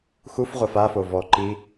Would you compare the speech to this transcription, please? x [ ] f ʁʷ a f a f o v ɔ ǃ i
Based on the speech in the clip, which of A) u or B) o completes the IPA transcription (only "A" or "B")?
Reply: A